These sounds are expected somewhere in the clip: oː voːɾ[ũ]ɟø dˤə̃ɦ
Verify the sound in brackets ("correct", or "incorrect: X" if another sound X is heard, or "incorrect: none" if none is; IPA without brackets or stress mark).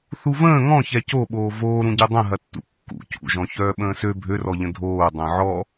correct